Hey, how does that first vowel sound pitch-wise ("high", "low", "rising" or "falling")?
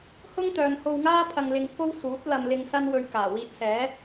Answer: high